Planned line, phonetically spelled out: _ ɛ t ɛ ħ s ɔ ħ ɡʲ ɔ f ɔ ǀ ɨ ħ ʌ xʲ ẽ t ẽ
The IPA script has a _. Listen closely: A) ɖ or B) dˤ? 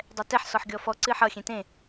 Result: B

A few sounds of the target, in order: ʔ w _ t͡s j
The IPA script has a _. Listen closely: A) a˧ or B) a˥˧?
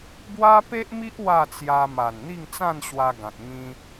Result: B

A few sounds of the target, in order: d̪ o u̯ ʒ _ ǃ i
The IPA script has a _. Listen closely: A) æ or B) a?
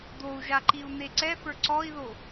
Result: B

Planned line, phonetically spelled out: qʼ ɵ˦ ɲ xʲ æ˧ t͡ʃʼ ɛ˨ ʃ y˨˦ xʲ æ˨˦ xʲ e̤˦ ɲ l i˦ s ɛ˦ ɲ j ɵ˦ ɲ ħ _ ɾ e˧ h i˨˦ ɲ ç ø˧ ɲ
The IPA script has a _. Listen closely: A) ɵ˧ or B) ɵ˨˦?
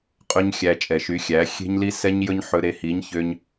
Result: A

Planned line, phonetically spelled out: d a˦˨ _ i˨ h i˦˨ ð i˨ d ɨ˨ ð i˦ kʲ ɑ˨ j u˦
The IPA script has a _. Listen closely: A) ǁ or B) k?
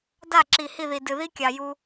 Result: A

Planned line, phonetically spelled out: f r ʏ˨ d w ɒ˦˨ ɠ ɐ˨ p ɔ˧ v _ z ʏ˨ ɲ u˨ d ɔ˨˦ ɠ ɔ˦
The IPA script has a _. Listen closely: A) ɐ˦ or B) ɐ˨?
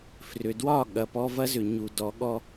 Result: A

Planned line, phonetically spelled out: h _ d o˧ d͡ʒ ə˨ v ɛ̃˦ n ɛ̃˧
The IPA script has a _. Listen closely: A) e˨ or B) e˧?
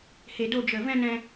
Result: A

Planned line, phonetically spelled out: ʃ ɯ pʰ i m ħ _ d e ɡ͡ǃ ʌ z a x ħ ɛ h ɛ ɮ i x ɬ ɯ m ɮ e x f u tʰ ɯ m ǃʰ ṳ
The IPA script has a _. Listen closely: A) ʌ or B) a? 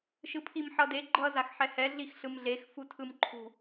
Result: A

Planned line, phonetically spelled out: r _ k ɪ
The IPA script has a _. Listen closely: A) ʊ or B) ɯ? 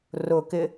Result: A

